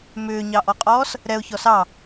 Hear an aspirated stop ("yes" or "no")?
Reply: no